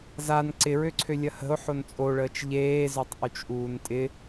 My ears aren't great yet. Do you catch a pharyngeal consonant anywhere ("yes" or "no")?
yes